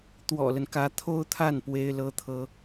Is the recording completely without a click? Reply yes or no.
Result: yes